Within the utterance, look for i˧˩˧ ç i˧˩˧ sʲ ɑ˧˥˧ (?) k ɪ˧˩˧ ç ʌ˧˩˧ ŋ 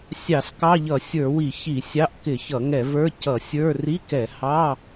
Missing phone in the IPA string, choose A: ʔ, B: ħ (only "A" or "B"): A